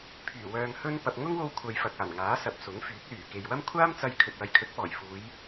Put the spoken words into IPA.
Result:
pʰyː˨˩wœː˨ŋ hɵ˥n pɐ˨p̚ŋʊ˥ŋwo˧w kʷʰɐ˨jfɐ˨k̚ aː˨˩nŋaː˨˥sɐ˨p̚ sʊ˨˥ŋfyː˨˥k̚ lyː˨˩ke˨jwɐ˥m kʷʰaː˥mt͡sɐ˧j kʰɵ˨t̚wɐ˨˧jkʰɵ˨˥t̚ pɔː˨˩jfuː˨˧j

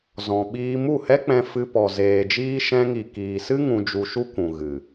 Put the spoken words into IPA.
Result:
zɔ̃˨ɓiː˧ mu˦˨hɛ˦k͡pɛ̃˧ fɨ˧pɔ˨zeː˨d͡ʒiː˦ ʃɛ̃˧ŋi˨ kiː˨sɨ˦ ŋũ˧d͡ʒu˧ʃu˦kʷũ˨ ɣɨ˨

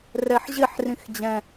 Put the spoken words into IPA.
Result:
rɛħʑɪħ rĩxd͡ʑɛ̃

